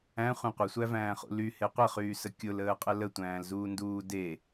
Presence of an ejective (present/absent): present